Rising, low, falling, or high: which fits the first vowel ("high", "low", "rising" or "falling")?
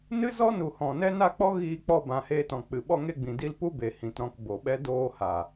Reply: high